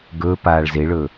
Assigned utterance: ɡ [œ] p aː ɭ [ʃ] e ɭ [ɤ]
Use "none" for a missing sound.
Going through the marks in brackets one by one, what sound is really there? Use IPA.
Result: ɵ, z, ɵ

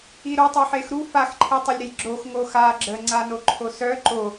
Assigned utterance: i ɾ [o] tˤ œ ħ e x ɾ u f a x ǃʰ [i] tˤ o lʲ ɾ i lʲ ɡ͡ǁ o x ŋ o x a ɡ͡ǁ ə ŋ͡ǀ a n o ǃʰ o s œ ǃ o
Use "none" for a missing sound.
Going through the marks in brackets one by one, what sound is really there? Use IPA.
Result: o, i

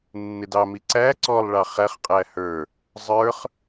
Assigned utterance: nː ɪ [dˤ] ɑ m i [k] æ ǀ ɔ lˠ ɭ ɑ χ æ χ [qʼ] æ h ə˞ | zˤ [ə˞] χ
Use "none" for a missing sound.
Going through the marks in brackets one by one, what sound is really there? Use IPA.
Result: d, ǀ, qʼ, ə˞

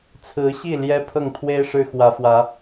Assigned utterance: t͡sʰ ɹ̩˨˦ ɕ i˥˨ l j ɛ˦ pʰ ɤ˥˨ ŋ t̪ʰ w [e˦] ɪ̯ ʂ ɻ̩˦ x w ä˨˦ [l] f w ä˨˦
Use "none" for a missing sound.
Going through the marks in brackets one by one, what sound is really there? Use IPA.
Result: e˦, none

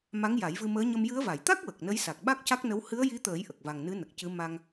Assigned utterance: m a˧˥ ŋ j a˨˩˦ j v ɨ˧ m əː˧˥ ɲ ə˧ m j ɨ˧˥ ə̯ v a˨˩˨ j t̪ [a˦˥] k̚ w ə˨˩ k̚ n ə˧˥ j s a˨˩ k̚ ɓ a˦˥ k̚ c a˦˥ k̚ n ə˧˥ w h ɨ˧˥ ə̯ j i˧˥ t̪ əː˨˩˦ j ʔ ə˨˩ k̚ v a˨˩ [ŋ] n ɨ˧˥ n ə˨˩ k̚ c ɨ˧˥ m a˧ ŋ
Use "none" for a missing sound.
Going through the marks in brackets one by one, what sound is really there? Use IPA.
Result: a˦˥, ŋ

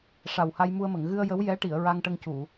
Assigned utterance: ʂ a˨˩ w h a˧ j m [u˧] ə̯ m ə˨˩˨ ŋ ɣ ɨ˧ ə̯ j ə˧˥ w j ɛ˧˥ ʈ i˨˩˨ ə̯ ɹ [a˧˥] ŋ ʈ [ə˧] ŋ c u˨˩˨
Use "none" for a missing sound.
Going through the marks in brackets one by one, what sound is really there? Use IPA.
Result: u˧, a˧, ə˧

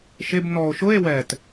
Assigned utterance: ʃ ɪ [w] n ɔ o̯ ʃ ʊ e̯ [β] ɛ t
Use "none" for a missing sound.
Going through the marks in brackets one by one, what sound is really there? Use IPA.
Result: b, w

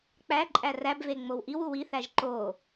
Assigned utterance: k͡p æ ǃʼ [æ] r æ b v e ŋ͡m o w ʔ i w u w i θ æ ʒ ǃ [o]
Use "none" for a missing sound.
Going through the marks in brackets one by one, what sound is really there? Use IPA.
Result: æ, o

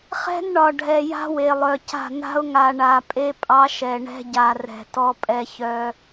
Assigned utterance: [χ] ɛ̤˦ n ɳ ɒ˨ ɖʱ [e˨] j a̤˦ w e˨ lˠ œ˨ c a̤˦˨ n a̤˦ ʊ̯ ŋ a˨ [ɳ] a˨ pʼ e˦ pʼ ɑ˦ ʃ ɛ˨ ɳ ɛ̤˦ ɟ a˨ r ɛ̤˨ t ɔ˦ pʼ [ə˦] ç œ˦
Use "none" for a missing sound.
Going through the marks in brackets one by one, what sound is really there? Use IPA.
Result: χ, ɛ˨, ɳ, ɛ˦

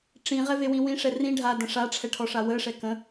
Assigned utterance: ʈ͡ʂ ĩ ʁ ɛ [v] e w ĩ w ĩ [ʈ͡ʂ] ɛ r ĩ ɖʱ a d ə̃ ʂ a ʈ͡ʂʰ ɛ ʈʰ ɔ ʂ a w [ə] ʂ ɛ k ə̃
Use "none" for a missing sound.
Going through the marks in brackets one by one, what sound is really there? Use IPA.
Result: v, ʂ, ə

